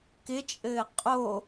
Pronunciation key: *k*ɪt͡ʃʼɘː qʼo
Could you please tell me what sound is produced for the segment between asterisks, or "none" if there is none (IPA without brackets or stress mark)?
k